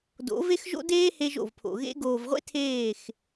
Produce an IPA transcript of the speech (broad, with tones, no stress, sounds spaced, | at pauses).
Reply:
d o̰˨˦ v e˦ x ʒ o̰˦ d eː˦ h e˧ ʒ o̰˨ v pʰ o̰˨ ɣ ḛ˧ ɡ oː˨ v ʁʷ ḛ˦ tʰ eː˦˨ x